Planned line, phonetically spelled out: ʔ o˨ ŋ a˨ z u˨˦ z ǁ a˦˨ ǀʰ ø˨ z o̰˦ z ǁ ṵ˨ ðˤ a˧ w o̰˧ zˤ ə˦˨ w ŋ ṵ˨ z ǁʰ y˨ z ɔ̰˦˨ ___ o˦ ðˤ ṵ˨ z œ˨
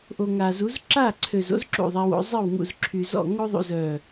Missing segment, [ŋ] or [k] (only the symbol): ŋ